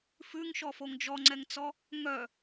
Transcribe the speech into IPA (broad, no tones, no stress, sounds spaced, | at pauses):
f ʉ ŋ ʃ ɔ f o ŋ d͡ʒ ɔ ŋ͡ǀ ɛ ŋ t͡s ɔ | ŋ œ